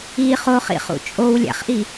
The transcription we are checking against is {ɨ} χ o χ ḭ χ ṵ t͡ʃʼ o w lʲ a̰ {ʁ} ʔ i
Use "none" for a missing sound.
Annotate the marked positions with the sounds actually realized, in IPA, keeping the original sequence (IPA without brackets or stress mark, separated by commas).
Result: i, χ